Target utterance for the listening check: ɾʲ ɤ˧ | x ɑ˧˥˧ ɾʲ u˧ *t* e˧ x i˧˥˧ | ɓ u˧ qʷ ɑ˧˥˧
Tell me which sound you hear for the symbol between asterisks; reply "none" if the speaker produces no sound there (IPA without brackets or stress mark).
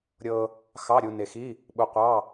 n